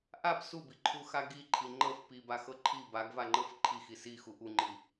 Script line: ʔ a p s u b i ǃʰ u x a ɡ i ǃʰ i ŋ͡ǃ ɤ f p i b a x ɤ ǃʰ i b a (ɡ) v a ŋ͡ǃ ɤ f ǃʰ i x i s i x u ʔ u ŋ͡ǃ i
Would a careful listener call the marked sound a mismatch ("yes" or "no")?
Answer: no